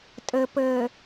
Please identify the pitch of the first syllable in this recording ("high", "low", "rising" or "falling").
low